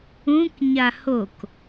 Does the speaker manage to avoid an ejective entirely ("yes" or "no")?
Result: yes